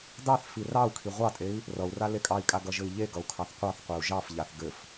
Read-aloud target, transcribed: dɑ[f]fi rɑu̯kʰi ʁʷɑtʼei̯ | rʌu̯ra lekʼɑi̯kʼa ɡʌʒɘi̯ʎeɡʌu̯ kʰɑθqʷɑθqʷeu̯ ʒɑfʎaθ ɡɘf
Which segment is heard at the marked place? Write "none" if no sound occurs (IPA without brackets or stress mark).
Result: θ